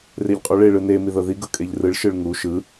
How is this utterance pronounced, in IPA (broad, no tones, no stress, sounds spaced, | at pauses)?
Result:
r e ʎ qʼ u ɭ e ɭ ɯ n e m i ð ɤ ð i ɡ ɤ kʼ e ʎ r ɯ ɭ ʃ ɯ ɭ ŋ u ʃ ɯ